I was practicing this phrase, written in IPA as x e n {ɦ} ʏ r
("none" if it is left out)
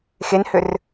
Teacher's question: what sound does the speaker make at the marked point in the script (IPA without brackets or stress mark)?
h